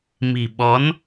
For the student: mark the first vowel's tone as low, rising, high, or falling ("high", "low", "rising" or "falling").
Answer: low